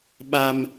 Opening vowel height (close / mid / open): open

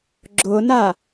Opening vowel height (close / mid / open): close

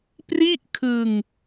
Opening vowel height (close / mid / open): close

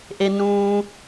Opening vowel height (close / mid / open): mid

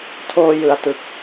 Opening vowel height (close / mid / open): mid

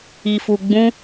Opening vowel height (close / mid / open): close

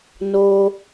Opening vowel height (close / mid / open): mid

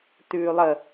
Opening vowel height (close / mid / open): close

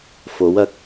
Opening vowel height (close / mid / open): mid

